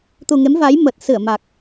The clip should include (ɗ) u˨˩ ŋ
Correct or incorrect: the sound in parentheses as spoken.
incorrect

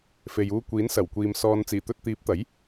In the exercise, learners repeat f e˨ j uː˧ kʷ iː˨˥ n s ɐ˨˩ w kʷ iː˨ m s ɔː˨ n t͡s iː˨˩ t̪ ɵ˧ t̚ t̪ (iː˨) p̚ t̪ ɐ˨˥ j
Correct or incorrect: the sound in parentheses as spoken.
incorrect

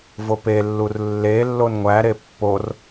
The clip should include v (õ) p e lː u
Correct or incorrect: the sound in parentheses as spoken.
incorrect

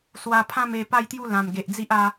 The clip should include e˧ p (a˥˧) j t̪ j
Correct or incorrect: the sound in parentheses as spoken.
correct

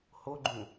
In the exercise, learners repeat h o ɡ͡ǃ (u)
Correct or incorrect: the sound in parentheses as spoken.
incorrect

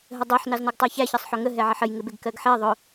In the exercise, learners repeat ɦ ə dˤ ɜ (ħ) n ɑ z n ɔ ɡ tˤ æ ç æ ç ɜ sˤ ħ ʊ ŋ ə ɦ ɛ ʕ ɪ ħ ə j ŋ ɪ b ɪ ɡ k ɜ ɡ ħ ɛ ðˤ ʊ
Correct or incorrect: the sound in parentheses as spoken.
correct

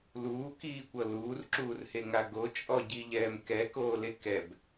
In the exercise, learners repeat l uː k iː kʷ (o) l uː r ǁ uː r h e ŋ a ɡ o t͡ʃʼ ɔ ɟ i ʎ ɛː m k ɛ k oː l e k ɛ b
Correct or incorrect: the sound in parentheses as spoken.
incorrect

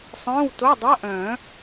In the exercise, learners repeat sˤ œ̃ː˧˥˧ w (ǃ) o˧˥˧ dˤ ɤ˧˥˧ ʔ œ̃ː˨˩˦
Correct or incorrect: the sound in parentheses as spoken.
incorrect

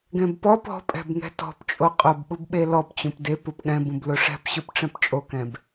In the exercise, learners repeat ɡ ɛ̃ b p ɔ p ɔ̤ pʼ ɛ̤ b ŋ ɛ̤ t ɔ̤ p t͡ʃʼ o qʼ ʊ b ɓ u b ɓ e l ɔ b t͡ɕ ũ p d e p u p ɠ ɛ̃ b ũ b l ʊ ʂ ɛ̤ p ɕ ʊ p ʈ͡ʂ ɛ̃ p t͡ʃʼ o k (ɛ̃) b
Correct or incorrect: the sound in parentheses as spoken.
correct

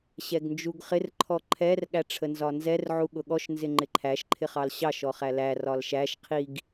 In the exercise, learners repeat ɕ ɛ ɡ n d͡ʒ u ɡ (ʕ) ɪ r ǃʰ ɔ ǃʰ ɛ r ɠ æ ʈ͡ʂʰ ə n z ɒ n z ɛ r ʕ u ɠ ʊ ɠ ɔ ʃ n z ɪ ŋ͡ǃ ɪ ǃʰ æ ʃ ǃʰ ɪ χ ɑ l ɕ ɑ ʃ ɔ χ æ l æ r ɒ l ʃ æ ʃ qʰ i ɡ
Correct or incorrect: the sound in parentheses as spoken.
incorrect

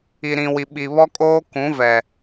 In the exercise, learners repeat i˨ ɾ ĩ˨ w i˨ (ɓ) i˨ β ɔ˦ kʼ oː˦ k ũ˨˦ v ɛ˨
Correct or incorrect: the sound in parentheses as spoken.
correct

